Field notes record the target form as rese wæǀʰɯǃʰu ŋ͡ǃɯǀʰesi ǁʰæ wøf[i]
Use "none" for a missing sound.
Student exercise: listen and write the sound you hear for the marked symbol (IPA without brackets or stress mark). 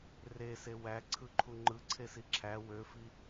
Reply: i